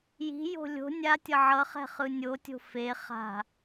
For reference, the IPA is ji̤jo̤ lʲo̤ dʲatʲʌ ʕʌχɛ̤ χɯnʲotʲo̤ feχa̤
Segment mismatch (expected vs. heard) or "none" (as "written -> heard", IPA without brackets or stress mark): dʲ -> nʲ